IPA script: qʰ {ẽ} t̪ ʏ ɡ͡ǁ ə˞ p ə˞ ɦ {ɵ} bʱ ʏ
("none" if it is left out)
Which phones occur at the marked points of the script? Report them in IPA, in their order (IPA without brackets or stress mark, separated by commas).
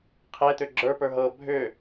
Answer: e, ɤ